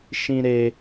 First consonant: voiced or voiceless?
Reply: voiceless